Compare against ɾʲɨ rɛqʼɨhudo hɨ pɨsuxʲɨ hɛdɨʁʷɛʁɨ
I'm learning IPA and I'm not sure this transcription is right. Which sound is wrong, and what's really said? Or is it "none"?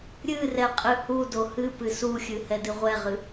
none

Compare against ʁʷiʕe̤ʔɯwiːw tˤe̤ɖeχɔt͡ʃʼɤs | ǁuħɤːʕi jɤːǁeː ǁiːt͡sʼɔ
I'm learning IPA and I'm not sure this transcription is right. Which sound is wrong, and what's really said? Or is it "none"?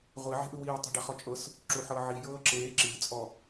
none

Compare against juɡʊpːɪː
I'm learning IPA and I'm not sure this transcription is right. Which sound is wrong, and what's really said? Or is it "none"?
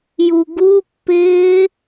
ʊ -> u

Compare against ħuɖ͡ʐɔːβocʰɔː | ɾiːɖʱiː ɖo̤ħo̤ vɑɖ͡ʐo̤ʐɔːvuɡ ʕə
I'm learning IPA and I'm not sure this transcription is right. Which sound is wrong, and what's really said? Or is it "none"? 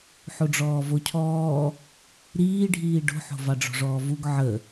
β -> v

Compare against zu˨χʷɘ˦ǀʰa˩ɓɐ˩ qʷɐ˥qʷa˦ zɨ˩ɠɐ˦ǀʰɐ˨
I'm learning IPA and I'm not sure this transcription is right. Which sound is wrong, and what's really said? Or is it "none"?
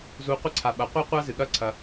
χʷ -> qʷ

